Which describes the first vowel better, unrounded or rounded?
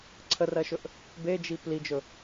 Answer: unrounded